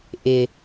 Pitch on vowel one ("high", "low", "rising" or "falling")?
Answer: low